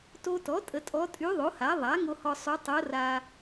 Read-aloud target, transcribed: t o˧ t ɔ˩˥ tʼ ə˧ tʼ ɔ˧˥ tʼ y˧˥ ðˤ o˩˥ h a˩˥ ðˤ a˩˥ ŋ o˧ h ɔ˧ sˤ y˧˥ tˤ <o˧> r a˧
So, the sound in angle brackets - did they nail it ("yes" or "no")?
no